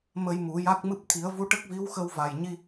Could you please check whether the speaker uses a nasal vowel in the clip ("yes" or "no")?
no